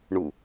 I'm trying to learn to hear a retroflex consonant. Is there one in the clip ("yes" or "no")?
yes